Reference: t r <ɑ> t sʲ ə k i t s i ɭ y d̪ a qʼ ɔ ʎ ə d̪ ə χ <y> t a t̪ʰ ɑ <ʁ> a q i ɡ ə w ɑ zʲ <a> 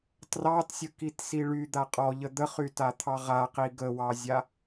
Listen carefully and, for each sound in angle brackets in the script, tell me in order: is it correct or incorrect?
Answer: correct, correct, correct, correct

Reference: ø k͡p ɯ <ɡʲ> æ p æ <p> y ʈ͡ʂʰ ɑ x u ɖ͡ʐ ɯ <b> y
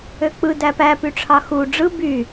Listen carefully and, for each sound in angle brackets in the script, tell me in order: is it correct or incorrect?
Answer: incorrect: d, correct, correct

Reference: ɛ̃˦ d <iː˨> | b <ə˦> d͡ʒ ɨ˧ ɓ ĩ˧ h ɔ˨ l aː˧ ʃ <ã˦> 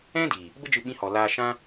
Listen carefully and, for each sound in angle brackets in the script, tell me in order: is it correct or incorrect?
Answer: correct, correct, correct

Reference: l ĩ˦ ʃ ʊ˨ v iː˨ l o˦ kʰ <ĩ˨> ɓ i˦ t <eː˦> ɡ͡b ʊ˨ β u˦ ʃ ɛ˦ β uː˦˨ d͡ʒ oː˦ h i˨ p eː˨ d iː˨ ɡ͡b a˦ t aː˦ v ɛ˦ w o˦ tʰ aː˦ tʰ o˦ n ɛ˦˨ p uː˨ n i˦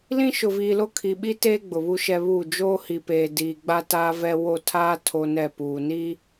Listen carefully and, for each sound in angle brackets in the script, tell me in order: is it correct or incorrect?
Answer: incorrect: i˨, correct

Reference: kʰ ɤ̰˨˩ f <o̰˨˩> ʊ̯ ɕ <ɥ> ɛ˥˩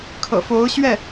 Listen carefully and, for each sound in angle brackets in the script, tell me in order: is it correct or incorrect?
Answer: incorrect: o˧˥, correct

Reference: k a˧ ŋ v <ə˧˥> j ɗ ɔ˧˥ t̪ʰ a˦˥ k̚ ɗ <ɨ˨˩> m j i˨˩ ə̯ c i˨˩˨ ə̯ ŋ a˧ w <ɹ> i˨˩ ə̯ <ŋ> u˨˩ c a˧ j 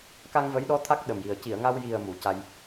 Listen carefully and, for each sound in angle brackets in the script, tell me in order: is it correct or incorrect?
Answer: correct, incorrect: ə˨˩, incorrect: j, incorrect: m

